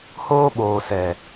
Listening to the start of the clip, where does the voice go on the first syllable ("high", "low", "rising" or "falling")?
high